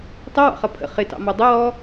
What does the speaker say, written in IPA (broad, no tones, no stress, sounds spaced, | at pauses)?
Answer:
tˤ ɪ w ɑ̰ χ ʌ pʰ ə̰ χ ɪ t ɑ̰ m ɔ dˤ ə w ɔ